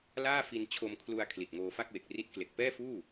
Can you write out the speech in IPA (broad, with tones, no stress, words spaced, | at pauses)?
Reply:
laː˥˩fi˧nt͡ɕʰo˧mkʰlu˧a̯ kʰli˨˩t̚ŋoː˧fa˥˩k̚we˨˩k̚ ri˦˥t̚kle˨˩k̚ pɛː˥˩fuː˥˩